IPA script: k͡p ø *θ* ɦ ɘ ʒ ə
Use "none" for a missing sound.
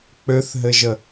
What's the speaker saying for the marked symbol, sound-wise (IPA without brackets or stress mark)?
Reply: θ